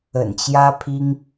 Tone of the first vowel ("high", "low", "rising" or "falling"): low